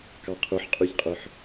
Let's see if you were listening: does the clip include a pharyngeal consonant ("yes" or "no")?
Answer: yes